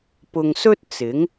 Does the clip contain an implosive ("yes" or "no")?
no